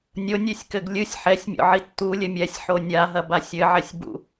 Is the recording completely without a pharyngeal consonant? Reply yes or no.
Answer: no